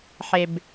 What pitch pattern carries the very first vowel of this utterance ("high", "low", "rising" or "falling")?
low